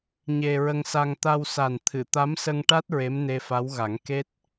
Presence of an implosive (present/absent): absent